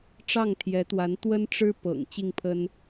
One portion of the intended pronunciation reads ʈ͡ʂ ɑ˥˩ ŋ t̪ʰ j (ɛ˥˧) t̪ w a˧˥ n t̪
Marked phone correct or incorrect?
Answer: incorrect